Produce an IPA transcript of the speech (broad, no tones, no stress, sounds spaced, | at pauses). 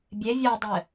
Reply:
bʲ e vʲ ɔ dˤ ɘ